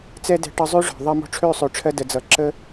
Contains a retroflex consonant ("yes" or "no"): yes